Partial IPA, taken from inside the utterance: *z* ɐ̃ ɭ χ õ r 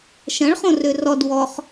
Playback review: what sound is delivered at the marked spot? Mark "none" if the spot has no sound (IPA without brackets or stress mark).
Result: ʃ